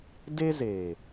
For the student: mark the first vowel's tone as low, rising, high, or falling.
high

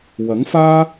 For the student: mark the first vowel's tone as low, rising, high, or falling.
rising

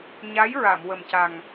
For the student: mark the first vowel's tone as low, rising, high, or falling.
rising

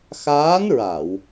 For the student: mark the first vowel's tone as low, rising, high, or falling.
rising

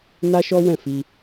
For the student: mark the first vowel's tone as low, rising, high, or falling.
high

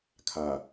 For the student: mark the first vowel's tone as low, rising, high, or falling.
low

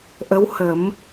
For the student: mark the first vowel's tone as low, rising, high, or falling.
rising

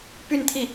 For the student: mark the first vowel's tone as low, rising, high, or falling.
falling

